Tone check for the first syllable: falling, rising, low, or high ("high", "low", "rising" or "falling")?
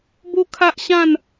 high